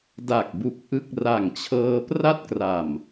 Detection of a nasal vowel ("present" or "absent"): absent